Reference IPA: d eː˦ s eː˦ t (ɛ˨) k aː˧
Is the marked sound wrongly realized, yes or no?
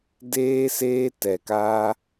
no